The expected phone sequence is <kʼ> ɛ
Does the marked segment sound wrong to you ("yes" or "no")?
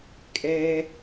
no